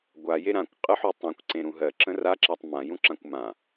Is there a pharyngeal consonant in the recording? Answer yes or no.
yes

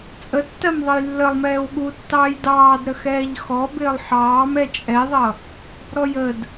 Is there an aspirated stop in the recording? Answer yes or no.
no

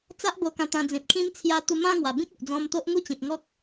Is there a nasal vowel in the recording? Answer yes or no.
yes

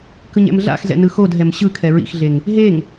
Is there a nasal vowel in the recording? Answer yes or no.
no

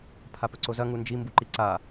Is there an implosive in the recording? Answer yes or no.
no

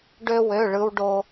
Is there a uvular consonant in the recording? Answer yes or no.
no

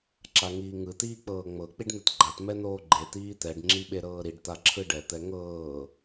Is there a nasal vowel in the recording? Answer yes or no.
no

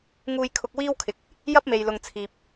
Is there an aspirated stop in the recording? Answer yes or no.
yes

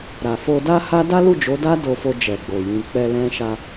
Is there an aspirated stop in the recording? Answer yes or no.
no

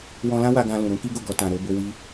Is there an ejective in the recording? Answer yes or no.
no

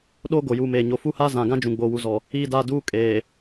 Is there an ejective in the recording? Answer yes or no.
yes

